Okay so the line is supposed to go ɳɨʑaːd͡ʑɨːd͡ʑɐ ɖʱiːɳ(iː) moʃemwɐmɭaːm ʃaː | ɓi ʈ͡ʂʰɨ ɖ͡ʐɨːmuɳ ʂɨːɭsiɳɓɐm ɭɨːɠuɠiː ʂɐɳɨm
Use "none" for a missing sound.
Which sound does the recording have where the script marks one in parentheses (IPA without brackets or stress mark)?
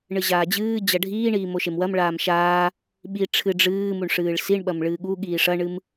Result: iː